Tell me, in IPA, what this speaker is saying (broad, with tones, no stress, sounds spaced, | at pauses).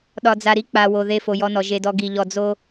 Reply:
ɗ ɒ˨ d͡z a˨ ɾ i˦ k͡p a˨ w o˨ ð e˦˨ f o˨ j ɔ˦ n ɔ˨ ʒ e˨ d ɔ˨ ɡ i˨ ʎ ɔ˨ d͡z o˦